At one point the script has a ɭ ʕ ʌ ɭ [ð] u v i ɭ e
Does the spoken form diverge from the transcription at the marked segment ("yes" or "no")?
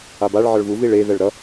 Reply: yes